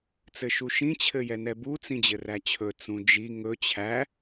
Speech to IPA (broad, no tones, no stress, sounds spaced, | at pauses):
t͡s ɘ ʃ u ʃ ĩ t͡ɕʰ ɘ j ɛ n ɛ b u t͡s ĩ d͡ʑ ɘ r æ t͡ɕʰ ɵ t͡s ũ d͡ʒ i ŋ ɵ t͡ɕʰ æ